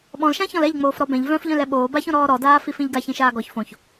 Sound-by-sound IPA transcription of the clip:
ɓ ɔ̃ l ʃ ã ç ɔ̃ l ɛ ʎ ŋ͡m oː f ɾ ɔ b ɛ̃ ʎ v œ̃ f ʎ œ̃ l ɛ ɓ oː b a ç õ ɾ ɔː ɾ ɔ d aː f i f ĩ ʎ ɡ a ç ĩ ʃ aː ɡ ɔ ç f õ ç

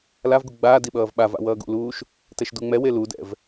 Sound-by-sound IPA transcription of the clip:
l a v ɡ u ɡ͡b aː d i ɓ ʌː v ɓ a v a̰ w ʌː ɡ ṵ l uː ʃ | t ɛ ʃ d u ŋ͡m ɛ w e l u d ɛ̰ v

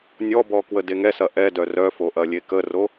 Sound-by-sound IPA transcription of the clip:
nʲ ɔ b ɔ k w ə d e ŋ ɛ s ɐ ʔ ɛ d œ r œ f o ʔ ɐ lʲ e k ə r o

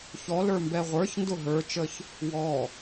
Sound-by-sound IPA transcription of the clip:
ç ɔ l ə˞ m b ɛ ʁʷ ə˞ ç n d ʊ ɦ ə˞ t͡ʃ ə ç | w ɔ

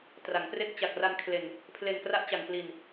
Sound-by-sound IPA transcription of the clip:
t r a˩˦ ŋ p r e˦˥ k̚ t͡ɕ a˨˩ k̚ r a˧ n kʰ l e˧ n | pʰ l e˧ n k r a˦˥ ʔ t͡ɕ a˧ ŋ p l i˧ n

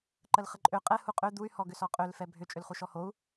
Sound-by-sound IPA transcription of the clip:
ǃ ə l χ ə ǃʼ ø qʼ ɛ h u qʼ ø d̪ u y̯ h ɔ ɡ ʏ s ɔ qʼ ø l f ɛ bʱ ʏ t͡ʃʼ ʏ l χ u ʃ ɔ h o u̯

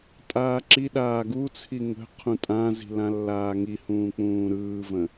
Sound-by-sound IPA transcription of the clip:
tʼ aː ǁ i ɗ aː ɡ u t͡sʰ i ŋ ə̤ qʰ ũ tʼ ã z i̤ l ã lː aː ŋ i h ũː k͡p ũː ɾ ɯː v ə̃

